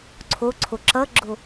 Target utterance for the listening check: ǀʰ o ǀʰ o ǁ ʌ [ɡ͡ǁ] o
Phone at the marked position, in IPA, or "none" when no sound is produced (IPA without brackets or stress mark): ɡ͡ǁ